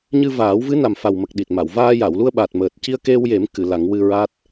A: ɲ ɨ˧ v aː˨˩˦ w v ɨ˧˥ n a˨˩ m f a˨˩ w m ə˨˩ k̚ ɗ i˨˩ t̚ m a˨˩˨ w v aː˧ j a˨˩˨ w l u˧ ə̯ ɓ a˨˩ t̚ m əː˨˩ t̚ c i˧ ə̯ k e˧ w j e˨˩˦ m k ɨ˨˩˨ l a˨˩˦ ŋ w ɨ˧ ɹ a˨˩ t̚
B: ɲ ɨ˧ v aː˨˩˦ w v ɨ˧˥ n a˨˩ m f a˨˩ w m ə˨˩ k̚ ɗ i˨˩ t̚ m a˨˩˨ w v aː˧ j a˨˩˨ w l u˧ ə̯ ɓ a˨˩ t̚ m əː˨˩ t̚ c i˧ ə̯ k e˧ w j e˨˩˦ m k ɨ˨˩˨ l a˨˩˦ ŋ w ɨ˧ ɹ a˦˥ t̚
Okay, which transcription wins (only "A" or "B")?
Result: B